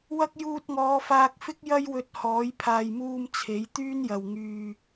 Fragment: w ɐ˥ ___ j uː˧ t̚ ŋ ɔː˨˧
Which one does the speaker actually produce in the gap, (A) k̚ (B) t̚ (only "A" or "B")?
A